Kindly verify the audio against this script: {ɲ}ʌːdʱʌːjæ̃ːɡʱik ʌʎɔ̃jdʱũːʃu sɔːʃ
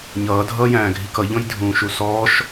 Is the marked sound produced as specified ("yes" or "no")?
yes